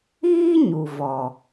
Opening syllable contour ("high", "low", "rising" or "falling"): high